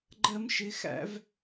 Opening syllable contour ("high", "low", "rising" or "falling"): high